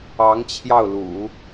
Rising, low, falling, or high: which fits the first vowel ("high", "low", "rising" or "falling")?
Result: rising